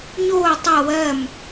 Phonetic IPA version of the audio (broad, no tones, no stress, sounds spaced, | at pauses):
ɲ oː tˤ ɤ w ɜ m